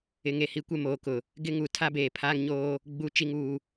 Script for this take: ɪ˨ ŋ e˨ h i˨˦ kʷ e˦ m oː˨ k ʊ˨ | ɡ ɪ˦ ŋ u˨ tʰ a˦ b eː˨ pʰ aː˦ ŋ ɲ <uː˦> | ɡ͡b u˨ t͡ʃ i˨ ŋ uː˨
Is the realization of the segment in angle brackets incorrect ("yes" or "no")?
yes